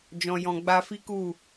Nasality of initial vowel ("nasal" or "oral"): nasal